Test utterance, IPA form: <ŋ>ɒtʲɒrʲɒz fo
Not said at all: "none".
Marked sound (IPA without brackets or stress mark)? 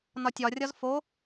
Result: n